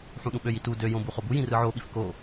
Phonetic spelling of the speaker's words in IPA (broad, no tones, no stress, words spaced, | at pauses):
ħũɗũɓøji tu døjõ buχobujĩ rɯʕoɓif ko